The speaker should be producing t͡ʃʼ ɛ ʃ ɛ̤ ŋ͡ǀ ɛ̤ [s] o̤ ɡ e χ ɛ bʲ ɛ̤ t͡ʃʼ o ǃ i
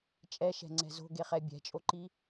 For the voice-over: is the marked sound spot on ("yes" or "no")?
no